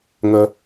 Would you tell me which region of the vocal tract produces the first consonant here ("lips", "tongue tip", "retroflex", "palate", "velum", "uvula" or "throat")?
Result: velum